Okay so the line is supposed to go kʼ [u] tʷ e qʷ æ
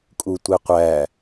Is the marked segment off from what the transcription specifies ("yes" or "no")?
no